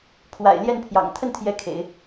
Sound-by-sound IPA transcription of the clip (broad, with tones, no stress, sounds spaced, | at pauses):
pʰ w a̰˨˩ ɪ̯ l j ɛ˥˩ n pʰ j ɑ̰˨˩ ŋ t̪ʰ ə˥˩ n t̪ʰ j ɛ˧˥ kʰ ḛ˨˩˦ ɪ̯